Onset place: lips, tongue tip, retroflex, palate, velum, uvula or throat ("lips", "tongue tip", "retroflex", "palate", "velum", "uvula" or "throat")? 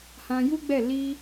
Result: throat